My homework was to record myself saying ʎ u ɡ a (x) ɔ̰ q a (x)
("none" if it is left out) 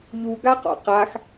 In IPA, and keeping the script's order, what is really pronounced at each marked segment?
q, x

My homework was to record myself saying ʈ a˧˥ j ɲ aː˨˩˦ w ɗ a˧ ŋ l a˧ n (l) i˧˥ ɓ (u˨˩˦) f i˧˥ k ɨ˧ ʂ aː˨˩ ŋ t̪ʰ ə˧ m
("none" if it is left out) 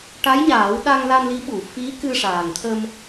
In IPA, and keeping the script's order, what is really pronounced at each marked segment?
l, u˨˩˦

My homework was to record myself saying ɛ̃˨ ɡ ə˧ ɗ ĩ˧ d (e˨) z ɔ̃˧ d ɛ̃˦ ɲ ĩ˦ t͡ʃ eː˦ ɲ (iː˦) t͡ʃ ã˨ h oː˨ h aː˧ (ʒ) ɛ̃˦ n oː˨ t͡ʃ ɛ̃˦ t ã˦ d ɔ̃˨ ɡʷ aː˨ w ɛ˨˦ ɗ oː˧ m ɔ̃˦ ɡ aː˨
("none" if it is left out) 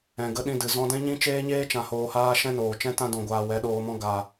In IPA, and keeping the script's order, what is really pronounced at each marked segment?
ɨ˨, eː˦, ʃ

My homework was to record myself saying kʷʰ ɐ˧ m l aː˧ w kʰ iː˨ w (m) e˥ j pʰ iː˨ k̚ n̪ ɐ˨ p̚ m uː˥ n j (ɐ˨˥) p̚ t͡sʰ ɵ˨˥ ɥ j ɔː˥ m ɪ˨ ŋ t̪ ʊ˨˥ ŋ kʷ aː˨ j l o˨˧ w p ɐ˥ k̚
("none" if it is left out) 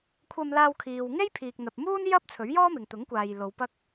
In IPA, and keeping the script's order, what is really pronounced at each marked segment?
ŋ, ɐ˥

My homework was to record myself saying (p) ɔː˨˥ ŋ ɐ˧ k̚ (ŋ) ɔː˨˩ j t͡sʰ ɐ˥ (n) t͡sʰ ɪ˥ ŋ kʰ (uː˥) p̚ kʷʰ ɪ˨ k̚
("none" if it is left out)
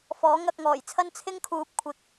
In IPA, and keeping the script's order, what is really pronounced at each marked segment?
f, ŋ, n, uː˨˥

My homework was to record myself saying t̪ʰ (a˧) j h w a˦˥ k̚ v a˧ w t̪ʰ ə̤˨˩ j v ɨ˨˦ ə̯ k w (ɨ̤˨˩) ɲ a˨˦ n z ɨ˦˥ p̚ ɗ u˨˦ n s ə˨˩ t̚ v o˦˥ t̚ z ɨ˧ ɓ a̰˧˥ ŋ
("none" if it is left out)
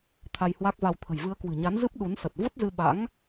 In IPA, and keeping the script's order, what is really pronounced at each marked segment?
a˧, ɨ̤˨˩

